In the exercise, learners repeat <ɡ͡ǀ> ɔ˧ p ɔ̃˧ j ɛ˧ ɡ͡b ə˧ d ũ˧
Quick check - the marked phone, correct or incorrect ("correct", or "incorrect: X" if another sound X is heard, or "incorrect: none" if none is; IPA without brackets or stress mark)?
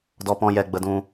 incorrect: d